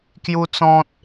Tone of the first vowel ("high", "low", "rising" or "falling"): high